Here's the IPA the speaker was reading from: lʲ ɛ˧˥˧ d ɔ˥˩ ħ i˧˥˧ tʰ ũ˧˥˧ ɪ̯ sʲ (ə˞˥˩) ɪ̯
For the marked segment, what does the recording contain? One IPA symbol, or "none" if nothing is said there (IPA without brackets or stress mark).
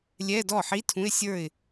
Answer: ə˞˥˩